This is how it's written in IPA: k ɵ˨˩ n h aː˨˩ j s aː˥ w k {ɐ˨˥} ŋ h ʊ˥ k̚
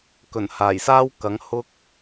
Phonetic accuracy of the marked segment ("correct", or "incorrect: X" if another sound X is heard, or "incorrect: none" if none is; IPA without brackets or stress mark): correct